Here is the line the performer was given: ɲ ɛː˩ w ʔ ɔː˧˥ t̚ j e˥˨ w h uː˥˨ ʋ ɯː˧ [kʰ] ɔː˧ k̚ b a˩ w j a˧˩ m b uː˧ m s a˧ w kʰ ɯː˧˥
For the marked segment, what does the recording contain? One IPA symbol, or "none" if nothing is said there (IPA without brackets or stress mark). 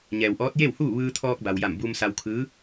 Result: t̪ʰ